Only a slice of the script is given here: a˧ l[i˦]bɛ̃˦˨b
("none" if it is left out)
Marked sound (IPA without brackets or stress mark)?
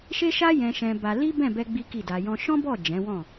i˦